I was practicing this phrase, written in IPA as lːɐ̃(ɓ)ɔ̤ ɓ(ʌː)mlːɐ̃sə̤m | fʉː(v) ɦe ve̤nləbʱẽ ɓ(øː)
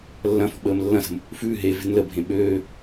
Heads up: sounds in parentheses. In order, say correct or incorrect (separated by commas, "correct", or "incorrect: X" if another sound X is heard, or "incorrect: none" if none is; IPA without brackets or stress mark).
incorrect: f, incorrect: əː, incorrect: none, correct